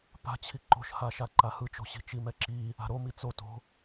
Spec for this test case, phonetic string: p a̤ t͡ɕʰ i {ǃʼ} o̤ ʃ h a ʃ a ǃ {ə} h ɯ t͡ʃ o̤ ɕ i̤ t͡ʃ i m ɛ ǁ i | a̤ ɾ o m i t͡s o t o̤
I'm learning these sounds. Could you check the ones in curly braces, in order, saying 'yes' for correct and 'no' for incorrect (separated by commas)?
no, no